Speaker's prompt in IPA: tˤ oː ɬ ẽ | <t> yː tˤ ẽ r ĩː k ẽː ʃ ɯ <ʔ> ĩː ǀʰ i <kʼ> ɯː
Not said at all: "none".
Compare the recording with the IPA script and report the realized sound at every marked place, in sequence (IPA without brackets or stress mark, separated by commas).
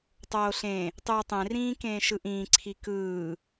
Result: tˤ, ʔ, k